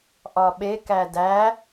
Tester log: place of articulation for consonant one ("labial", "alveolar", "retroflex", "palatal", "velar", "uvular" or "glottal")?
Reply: glottal